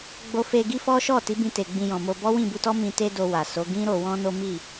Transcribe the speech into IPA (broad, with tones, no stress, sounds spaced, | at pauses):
ɡ͡b o˧ f e˧ ɡ i˦ f ɔ˦ ʃ ɔ˦˨ t i˨˦ b ĩ˧ t e˨ ɡ͡b ĩ˧ j ɔ̃˨ m o˧ b ɔ˦ w ĩ˦˨ b u˧ t ɔ˦ m ĩ˧ t e˦ d o˧ w a˨ s o˨˦ ɡ ĩ˦ ɾ o˧ w ɔ̃˦ n o˦ m i˦˨